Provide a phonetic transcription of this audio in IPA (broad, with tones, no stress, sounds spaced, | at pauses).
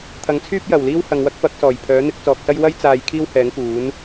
t̪ʰ ɐ˨˥ ŋ t͡sʰ yː˥ p̚ j ɐ˨˩ w l iː˥ w h ɐ˨ ŋ w ɐ˥ k̚ p ɐ˨˥ k̚ s ɔː˨˩ j pʰ œː˨˥ n̪ ɪ˨˥ k̚ t͡s ɔː˨ k̚ s ɐ˥ j w ɐ˥ j t͡s aː˧ j kʰ iː˥ w h ɛː˨˥ ŋ k uː˨˥ n